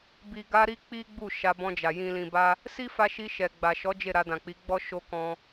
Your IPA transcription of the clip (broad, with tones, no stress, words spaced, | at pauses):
bi˨ɡa˧ ɾi˦k͡pi˦ɡ͡bu˦˨ ʃa˧bɔ̃˧d͡ʒa˨ jĩ˨lĩ˨ ba˧ | si˦fa˧ʃi˧ ʃɛ˨ɡ͡ba˨ʃɔ˨˦ d͡ʒe˦˨ɾa˧ dã˨k͡pi˨˦ɡ͡bɔ˦ ʃo˧kɔ̃˧